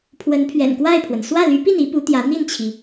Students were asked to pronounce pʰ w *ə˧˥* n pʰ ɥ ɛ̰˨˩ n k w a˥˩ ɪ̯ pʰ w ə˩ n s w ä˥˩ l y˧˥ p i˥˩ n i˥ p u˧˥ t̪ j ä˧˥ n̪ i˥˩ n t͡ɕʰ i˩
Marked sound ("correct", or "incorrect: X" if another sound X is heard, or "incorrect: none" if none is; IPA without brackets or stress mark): correct